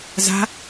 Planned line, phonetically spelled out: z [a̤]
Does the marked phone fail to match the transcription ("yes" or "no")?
no